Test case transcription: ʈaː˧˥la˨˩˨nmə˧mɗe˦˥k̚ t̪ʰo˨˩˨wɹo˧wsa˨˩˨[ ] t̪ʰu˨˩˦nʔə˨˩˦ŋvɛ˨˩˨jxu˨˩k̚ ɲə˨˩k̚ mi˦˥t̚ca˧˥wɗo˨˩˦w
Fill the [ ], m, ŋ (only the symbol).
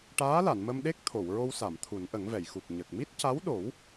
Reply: m